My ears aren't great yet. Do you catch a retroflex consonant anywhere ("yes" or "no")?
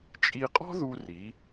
no